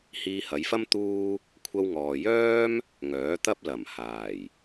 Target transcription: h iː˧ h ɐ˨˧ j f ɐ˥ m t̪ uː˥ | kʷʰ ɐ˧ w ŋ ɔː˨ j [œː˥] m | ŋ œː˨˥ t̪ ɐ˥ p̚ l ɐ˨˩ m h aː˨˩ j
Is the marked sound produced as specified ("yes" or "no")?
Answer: yes